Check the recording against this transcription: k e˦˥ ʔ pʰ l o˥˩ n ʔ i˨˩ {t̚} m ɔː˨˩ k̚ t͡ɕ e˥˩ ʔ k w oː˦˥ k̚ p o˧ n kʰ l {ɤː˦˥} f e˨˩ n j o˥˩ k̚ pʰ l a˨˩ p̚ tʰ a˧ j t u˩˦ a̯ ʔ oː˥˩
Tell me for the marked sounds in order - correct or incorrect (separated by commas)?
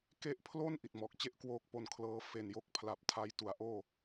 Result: correct, correct